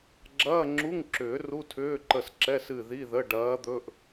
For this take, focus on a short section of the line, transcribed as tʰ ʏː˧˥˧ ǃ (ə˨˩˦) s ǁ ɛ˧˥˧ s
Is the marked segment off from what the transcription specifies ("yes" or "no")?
yes